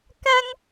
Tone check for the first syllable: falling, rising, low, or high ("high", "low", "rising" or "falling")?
high